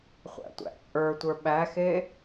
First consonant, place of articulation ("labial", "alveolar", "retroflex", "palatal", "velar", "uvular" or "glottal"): uvular